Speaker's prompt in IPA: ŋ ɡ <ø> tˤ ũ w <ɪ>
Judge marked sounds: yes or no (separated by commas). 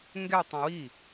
no, no